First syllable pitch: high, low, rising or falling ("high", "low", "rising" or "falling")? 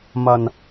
low